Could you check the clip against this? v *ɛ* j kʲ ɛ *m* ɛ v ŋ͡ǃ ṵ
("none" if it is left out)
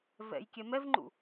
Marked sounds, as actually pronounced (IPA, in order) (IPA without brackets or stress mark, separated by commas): ɛ̰, m